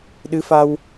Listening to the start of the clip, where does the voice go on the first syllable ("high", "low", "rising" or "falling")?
rising